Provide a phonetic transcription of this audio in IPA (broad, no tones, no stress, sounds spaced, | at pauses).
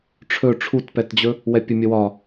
ʈ͡ʂʰ ɵ ʈ͡ʂʰ u t p ɛ t d͡ʑ ɵ | w ɛ pʲ ɵ mʲ ɘ w ɒ